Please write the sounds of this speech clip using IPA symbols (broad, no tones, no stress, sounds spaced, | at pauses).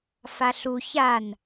f a ɬ u ç a n